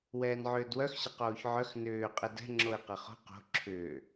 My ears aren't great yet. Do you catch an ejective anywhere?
yes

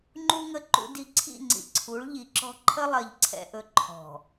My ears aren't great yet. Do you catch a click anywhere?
yes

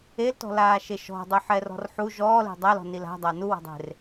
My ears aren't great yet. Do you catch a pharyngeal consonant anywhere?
yes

